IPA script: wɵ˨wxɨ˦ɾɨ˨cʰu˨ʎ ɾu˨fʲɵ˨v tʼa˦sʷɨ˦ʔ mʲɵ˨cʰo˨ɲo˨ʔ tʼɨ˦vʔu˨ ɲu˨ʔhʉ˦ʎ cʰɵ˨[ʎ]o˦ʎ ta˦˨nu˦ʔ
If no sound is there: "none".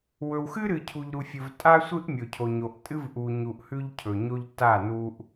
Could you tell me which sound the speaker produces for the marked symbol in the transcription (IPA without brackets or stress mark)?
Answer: ɲ